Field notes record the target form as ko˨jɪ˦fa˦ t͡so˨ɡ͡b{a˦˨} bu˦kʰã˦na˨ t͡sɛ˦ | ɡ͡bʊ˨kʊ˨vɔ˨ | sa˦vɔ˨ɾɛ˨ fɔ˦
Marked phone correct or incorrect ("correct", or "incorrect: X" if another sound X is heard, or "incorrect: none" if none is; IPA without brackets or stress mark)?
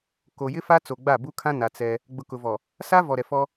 correct